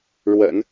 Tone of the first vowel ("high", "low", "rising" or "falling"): low